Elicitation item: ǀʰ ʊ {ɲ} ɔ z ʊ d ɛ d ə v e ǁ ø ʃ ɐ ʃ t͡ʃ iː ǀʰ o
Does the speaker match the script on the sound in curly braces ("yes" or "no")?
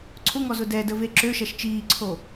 no